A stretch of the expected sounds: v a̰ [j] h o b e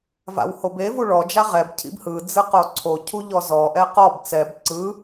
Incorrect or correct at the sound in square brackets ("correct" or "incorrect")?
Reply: incorrect